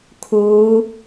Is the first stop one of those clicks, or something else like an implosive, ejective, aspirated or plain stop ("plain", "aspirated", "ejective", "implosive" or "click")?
aspirated